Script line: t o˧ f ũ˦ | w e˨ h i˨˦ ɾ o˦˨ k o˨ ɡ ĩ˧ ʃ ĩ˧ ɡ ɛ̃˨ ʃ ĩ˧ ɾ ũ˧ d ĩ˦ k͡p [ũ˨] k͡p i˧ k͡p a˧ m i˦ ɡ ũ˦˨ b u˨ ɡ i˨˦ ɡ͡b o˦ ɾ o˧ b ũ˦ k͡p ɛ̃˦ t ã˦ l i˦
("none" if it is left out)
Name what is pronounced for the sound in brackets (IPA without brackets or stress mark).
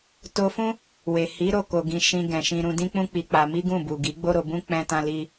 ũ˦